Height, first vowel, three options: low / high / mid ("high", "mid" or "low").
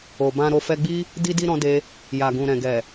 mid